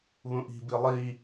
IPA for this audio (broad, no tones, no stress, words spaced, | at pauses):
βũʔi̤ bilˠi